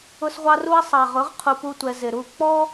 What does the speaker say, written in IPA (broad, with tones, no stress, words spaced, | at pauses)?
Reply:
ʊ˦sʁʷɑ˦ru˦ɐ̯ sˤɑ˨ʁʊ˨˦ʁ qʰu˧pu˦tʷɛ˧ zɪ˨ɾu˦˨ k͡pɔ˦